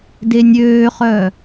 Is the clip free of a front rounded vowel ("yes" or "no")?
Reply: no